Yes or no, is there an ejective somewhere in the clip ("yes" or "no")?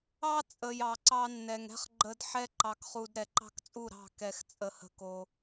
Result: yes